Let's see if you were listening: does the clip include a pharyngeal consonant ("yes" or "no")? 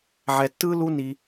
yes